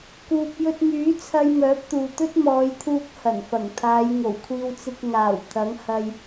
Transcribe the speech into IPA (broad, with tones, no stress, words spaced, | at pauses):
kuː˨p̚jɵ˧t̚myː˨˥t͡sʰɐ˧j mœː˨˥p̚t̪uː˨t̪ɵ˥t̚ mɔː˨˧jt̪ʰuː˧k̚ hɐ˨˩nfɐ˨˩ŋt̪ʰaː˨˧jŋo˨˩w kʷʰiː˧wt͡sɪ˧k̚ ŋaː˨˩w t̪ʰɐ˨˥ŋhɐ˧j